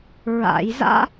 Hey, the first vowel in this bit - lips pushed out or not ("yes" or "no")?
no